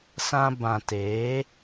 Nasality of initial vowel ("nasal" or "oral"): nasal